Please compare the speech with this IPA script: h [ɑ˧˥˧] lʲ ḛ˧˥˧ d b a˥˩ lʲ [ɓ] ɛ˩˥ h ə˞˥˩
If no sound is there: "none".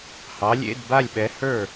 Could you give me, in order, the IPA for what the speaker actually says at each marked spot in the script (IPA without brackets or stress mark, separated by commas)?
ɑ˩˥, ɓ